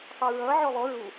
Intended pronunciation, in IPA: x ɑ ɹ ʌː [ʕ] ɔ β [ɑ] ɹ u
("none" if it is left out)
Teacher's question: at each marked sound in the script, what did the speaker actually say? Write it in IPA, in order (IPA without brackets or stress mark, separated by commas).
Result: ʕ, ɔ